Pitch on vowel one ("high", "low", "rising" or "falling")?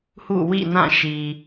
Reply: falling